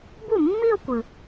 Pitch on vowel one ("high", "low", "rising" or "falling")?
falling